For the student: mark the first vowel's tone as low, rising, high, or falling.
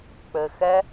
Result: low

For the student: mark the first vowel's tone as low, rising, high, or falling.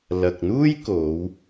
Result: low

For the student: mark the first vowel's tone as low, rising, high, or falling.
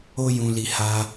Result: high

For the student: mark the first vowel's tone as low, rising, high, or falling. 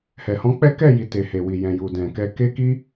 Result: low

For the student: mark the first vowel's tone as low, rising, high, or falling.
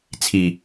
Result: low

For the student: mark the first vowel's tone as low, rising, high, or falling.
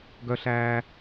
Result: high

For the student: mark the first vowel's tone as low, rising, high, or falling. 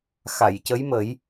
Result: low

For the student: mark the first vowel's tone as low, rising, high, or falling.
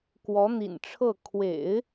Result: rising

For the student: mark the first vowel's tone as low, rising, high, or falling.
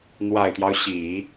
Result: low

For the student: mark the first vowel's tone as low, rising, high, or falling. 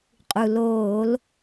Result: low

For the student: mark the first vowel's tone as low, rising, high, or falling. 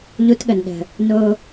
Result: high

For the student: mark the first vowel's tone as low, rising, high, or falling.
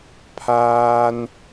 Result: high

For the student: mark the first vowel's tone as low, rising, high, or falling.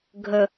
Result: low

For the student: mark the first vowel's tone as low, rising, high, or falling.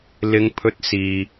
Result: high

